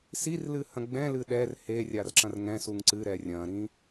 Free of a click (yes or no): no